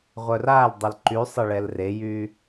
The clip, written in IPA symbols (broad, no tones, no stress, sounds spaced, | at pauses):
ʁʷ œ r a l dˤ ʊ l ǃ y sˤ ɐ ɭ ɛ l r e j y